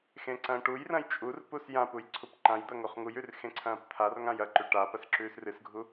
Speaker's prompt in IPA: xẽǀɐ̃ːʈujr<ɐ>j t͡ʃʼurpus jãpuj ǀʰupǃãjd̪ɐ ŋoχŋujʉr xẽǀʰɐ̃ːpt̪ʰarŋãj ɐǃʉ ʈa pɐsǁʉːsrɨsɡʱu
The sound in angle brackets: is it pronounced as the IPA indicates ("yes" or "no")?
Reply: no